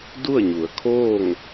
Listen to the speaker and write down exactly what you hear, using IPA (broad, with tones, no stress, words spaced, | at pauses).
du˥˨ə̯ɲu˩˧ə̯kʰoː˥˨ŋ